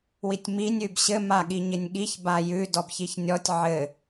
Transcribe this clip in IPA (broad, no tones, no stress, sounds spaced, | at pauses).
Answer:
w i tʲ m i nʲ ʉ b ɕ ɘ m a ɠ i ɲ ɪ nʲ ɠ i ç b a j ʉ d ɔ b ç i ç nʲ ɔ tʲ ʕ ɘ